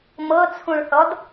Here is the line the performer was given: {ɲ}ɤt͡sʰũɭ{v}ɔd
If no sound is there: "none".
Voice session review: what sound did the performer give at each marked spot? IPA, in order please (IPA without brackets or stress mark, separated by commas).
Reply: m, θ